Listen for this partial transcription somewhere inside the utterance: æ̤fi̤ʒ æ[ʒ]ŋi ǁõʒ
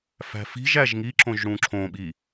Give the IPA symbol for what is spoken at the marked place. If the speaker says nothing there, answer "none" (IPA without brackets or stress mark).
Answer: ʒ